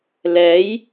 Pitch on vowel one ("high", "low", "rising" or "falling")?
rising